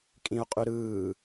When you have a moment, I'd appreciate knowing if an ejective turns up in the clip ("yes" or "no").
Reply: yes